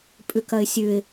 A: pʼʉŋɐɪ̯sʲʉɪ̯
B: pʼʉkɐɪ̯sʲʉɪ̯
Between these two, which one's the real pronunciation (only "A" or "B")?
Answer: B